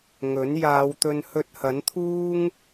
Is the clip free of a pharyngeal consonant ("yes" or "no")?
yes